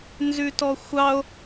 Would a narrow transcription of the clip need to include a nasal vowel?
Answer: no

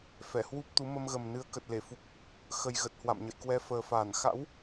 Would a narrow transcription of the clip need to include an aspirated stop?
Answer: no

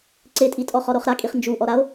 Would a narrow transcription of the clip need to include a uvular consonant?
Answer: yes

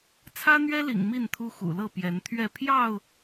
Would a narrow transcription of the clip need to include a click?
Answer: no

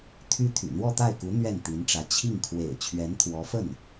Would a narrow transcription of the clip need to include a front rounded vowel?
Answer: yes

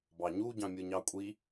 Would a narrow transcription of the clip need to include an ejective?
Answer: yes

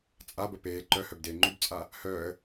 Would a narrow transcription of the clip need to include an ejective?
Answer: yes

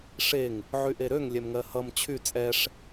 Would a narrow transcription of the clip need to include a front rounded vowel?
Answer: yes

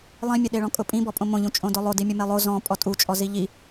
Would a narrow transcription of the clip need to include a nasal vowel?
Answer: yes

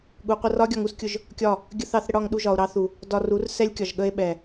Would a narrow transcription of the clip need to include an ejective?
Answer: no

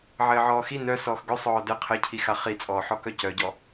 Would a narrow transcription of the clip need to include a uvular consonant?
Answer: yes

